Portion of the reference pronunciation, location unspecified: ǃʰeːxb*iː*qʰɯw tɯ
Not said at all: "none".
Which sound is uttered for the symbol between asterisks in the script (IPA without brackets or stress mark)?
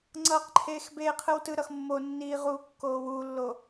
eː